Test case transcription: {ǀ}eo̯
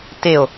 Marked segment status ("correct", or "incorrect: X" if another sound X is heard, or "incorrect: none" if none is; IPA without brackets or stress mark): incorrect: t